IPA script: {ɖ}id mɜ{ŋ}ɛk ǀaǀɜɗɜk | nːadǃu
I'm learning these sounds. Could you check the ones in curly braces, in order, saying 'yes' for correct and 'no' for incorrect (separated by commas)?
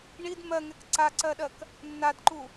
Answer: no, yes